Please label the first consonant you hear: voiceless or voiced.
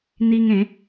voiced